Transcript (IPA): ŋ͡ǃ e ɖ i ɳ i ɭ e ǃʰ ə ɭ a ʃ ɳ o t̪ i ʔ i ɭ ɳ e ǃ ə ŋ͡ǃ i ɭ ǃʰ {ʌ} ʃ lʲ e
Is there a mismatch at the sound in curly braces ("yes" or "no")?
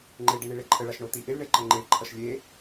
no